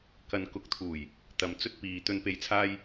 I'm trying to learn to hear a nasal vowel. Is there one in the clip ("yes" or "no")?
no